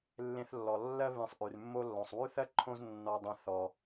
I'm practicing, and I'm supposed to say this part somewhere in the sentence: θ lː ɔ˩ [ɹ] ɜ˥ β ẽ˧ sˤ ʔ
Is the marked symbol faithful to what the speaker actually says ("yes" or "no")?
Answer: no